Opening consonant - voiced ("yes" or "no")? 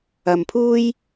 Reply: yes